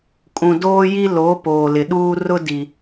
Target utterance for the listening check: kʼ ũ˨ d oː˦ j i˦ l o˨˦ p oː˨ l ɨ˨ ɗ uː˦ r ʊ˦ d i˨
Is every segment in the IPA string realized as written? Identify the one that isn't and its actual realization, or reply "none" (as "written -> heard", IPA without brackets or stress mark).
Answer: ɨ˨ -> ɪ˨